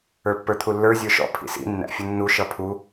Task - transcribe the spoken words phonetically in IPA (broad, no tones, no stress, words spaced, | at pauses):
ə˞pːə˞t̪ʰulːə˞ zʲə˞ʃɔ̰ pʰḭsḭ nːæ̰fʲʊnːu ʃʌpʰu